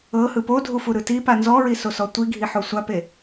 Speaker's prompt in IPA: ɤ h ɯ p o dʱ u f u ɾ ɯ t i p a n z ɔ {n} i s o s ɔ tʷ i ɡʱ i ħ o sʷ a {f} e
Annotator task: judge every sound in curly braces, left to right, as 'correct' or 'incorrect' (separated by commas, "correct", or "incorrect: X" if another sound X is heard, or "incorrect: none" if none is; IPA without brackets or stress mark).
incorrect: ɹ, incorrect: p